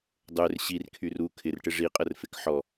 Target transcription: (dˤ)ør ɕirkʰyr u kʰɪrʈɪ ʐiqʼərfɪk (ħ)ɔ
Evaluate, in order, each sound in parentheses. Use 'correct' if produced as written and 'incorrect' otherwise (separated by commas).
correct, correct